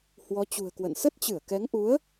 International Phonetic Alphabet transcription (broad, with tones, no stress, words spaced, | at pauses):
hwɔ˨˦t͡ɕṳ˨˩ə̯kwə̰˧˨n sə˦˥t̚t͡ɕɨ˧˩ə̯kɛ˨˦ŋʔu˨˦ə̯